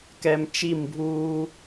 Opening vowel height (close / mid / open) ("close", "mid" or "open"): mid